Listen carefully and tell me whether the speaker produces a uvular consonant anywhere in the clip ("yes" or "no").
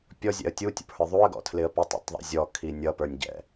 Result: no